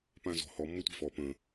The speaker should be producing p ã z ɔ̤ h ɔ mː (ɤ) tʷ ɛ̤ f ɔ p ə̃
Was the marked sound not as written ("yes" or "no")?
no